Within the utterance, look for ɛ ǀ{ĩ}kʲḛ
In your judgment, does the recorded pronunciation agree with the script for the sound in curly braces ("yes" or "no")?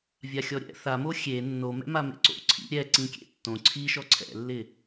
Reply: yes